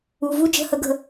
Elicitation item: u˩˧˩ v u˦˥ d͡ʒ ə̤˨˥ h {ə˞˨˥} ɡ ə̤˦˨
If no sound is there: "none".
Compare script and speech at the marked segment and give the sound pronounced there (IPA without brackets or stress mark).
ə˨˥